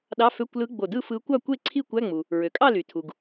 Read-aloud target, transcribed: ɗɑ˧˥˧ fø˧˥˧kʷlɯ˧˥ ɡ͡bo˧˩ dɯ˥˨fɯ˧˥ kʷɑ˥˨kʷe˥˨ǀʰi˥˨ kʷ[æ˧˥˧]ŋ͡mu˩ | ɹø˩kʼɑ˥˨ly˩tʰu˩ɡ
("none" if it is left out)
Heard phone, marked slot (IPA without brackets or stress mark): æ˧˥˧